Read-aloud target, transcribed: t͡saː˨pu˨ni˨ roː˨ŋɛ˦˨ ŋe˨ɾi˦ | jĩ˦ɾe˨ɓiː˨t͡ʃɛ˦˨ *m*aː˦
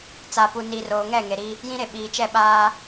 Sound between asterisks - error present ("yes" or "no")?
yes